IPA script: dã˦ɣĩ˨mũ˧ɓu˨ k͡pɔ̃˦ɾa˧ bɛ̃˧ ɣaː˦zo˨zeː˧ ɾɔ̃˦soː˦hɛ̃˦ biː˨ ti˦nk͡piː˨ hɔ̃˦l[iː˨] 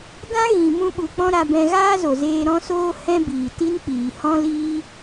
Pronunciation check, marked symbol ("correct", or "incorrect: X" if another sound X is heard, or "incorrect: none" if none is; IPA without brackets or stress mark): incorrect: iː˦